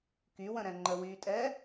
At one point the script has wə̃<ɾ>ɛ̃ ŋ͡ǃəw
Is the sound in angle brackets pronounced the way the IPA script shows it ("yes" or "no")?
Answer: yes